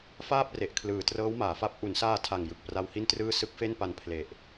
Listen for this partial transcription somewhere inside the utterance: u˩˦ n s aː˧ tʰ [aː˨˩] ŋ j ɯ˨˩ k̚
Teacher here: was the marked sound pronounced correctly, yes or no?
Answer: no